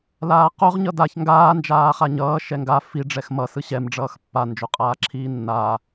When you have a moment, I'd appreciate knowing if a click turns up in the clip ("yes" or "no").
yes